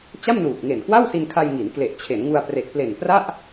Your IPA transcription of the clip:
t͡ɕ a˥˩ m n uː˨˩ k̚ ŋ e˨˩ n k w a˥˩ w s i˧ n kʰ a˧ j ŋ i˩˦ n k l e˨˩ ʔ t͡ɕʰ e˩˦ n ŋ u˧ a̯ p r e˨˩ k̚ p l e˨˩ n p r a˥˩ ʔ

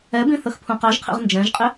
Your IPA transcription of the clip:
ɛ b ĩ θ ə x pʰ ũ q ɑ ʒ qʰ ḭ ʁ n d͡ʒ ɛ̃ ʒ qʼ ɪ

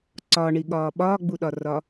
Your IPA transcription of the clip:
ǀ ɒ ɳ i ɠ ɒː ɓ ɒː ɡ͡b u ɗ ɒ r ɒ

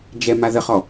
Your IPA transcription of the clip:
d͡ʒ ɛ m a ð ə χ ɔ

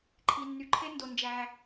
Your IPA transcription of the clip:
ǃʰ i˩ nː y˩ ǃʰ e˥ n d o˩ n d͡ʒ æ˩

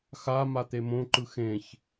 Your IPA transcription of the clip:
x a m a t̪ e m õ ǃ ɯ x ẽ ç

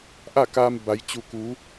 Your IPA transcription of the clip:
ʔ a˥˨ k aː˧ m b a˩˧ j t͡ɕ u˧˩ k u˩˧

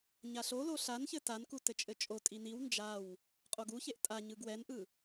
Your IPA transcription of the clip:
ɲ a ɬ o l o ɬ a n ç ɘ t a n k u t ɘ t͡ʃʼ ɘ t͡ʃʼ o tʼ i n i w n d͡ʒ a w | qʼ o ɡ u ç e ʔ tʼ a ɲ ɯ ɡ w ɛ n ʔ ɯ

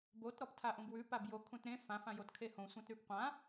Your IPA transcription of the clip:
b o t ɾ ɔ p tʰ a ʔ ũ b w ʉ p a b j o kʰ ũ t ɾ ẽ f ã f ã j o t kʰ e h õ sʷ ã t ɾ ʉ p qʷ ã

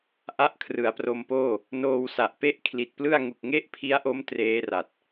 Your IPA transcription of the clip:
ʔ a˦˥ ʔ kʰ r ɯ˩˦ a̯ p r o˧ m p oː˥˩ | n oː˧ w s a˨˩ ʔ p e˥˩ ʔ kʰ l i˨˩ t̚ p l ɯ˥˩ a̯ ŋ u˨˩ k̚ ŋ e˥˩ ʔ pʰ i˦˥ a̯ ʔ o˦˥ m t r eː˦˥ r a˨˩ t̚

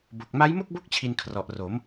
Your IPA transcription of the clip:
b o˨˩ k̚ m a˦˥ j m o˥˩ k̚ b o˦˥ k̚ t͡ɕʰ i˧ n kʰ r ɔ˨˩ ʔ r o˩˦ m

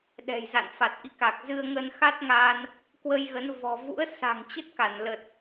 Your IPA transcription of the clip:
ɗ ɛ̤˨˩ j z a̰˧˨ n f a˨˩ t̚ ʔ ḭ˧˨ k a˨˩ k̚ z ɨ˧ ə̯ ŋ ə˧ n x a˦˥ t̚ ŋ a˧ n | k w ə˧ j ɣ ə˨˦ n v ɔ̤˨˩ v ṵ˧˥ ə̯ s a̤˨˩ ŋ t͡ɕ ə˦˥ t̚ k a˧˩ n l ə˨˩ t̚

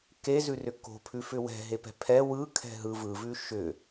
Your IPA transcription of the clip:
k e z ʉ r ʏ k o̤ pʰ ʉ f ʏ w ɛ̤ ɦ e p ɛ̤ pʰ ɛ w ɯ kʰ ɛ̤ ɦ ɯ v ɯ v ʉ ʃ ʏ

